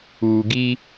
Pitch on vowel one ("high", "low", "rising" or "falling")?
low